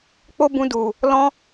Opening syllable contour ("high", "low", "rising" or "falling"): high